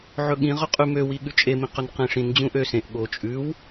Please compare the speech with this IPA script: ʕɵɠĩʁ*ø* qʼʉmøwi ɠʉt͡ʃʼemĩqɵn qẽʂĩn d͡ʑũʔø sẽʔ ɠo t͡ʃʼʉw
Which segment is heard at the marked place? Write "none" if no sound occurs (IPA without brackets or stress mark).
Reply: ɵ